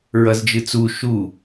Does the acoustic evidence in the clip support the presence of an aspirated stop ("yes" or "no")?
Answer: no